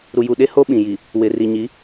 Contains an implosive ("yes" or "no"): yes